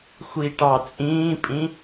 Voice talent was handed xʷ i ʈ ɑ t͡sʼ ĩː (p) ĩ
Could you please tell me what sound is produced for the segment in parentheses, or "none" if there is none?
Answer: pʼ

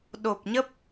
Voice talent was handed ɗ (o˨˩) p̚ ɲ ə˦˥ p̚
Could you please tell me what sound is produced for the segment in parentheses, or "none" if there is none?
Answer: o˨˩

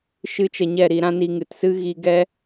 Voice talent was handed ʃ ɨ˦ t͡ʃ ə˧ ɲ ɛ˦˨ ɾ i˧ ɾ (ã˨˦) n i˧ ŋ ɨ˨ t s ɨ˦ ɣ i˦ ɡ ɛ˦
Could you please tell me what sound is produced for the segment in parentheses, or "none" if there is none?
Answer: ã˦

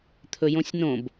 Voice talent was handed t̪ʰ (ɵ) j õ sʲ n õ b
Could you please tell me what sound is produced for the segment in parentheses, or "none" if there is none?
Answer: ɵ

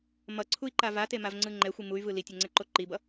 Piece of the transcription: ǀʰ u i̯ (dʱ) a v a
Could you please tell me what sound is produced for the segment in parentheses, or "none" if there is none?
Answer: ǃ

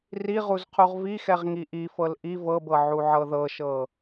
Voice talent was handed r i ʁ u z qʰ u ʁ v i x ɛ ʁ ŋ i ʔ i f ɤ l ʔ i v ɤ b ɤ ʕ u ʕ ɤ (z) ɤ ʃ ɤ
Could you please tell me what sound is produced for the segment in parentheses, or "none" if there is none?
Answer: ð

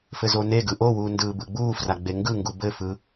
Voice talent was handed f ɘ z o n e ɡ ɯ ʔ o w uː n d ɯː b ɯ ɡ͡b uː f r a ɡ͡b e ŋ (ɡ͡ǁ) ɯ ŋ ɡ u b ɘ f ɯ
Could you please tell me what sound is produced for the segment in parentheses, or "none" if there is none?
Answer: ɡ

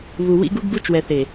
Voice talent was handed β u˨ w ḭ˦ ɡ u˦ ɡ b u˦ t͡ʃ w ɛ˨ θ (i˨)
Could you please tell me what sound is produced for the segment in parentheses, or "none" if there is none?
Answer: e˨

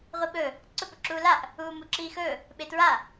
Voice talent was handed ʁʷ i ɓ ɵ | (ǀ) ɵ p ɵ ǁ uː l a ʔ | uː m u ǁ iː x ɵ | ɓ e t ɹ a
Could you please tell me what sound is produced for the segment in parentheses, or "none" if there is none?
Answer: ǀ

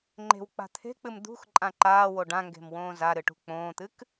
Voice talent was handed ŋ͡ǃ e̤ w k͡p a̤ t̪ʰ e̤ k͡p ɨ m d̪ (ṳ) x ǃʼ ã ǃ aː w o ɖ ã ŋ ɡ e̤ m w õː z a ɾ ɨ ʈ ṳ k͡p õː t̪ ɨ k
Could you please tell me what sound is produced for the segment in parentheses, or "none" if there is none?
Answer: ṳ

